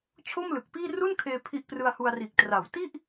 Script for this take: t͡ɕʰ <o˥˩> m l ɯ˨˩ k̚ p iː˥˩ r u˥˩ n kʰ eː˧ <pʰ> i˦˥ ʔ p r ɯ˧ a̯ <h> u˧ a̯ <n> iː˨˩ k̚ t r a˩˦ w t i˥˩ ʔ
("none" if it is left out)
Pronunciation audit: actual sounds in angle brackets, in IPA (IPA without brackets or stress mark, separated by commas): o˥˩, pʰ, h, r